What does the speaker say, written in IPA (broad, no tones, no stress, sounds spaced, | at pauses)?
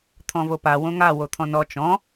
t̪ʰ ɔ̃ v o p a w õ ŋ a w o t̪ʰ ɔ̃ n ɔ t͡ʃ ɔ̃